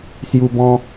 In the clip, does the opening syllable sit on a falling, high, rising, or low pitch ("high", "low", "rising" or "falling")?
high